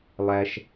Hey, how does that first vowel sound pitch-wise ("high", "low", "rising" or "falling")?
low